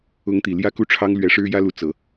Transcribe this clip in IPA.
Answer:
ʊ˧˥ ŋ t̪ i˨˩ l j ä˥˧ k u˥˩ ʈ͡ʂʰ ɑ˥ ŋ l ɥ ɛ˧˥ ʂ ɻ̩˥ j ä˥ l u˧˥ t͡s ɤ˨˩˦

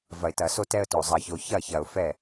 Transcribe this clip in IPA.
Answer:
v ɐ˨ ɪ̯ t ɐ˨ s o˦ t ɛ˦ ə̯ t o˨ zˤ ɐ˨ ç o˨ ç ɐ˦˨ ç ɐ˨ ʊ̯ f ɛ˦˨

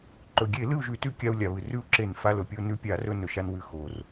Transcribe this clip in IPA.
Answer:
ǃ ɵ˩ ɡʲ e˧˩˧ l ɨ˥˨ u̯ ʒ ʉ˧˩˧ t ʉ˥˨ kʲ a˧ u̯ lʲ a˩ β ɨ˩ r ʉ˥˨ u̯ ǁ e˧˩˧ n f a˧ l ɵ˩ pʲ o˧ n ʉ˧ pʲ a˧˩˧ r ɵ˧ n ɵ˩ ʃ a˧ n w ʉ˧˩˧ x o˩ r

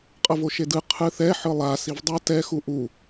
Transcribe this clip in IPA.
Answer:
qʼ ʌ v o ʃ e d ɯ qʰ ɯ θ ɛ ħ ɯ lˠ a s i v dˤ a t ɛ x u ʔ u

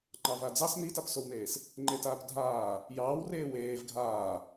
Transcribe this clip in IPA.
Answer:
ŋ͡ǃ ɑ v a d͡z ɑ s n i t a p s o w n eː s | ŋ͡ǃ e t aː p dʱ aː | j ɑː w r eː w eː v ɡʱ aː

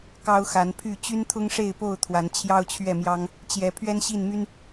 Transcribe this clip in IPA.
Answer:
k ɑ˦ ʊ̯ x a˨˦ n pʰ y˥˨ t͡ɕ y˦ n t̪ʰ ʊ˦ ŋ ʂ e˥˨ ɪ̯ p o˥˨ ʊ̯ t̪ʰ w a˨˦ n t͡ɕʰ j ɑ˦ ʊ̯ t͡ɕʰ ɥ ɛ˥˨ m j ɑ˦ ŋ | t͡ɕ j ɛ˨˦ pʰ ɥ ɛ˦ n ɕ i˥˨ n m y˦ n

